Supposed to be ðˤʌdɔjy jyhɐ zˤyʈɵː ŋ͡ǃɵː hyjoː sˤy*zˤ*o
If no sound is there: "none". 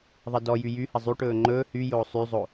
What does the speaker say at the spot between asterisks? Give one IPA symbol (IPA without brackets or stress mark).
zˤ